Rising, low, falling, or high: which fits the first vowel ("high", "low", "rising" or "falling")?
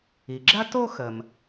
low